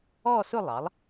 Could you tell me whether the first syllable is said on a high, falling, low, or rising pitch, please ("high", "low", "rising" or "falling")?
falling